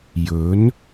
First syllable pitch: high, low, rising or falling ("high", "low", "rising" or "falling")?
rising